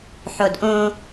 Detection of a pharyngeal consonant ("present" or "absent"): present